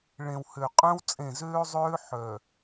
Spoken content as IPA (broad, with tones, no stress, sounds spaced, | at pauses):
ɭ ẽ˨ w h ø˨ qʼ œ̃˦ w t͡sʼ ẽ˦˨ z øː˦ zˤ øː˦ ħ œ˨